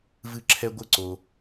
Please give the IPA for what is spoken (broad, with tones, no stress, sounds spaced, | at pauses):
v ɨ˧˩ ǁʰ ɛ˧ ɡʷ ɘ˧ ǀ o˧